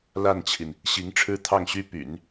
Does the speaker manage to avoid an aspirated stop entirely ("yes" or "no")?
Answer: no